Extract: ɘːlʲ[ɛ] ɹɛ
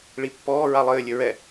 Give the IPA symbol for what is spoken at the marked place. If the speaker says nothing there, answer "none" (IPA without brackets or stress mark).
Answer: ɘ